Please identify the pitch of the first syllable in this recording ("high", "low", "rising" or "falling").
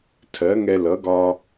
rising